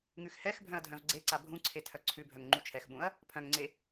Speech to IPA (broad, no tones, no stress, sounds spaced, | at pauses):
ŋ ʉ x h ɛ x bʱ œ̃ ɐ̯ dʱ œ̃ v ɡ͡ǀ e ǀ a bʱ ũ ǀʰ e tʰ œ ǀʰ ʉ bʱ œ ŋ ŋ͡ǃ u t͡ʃʰ ɛ x ɓ ũ ɐ̯ | pʰ œ̃ ŋ ŋ͡ǀ e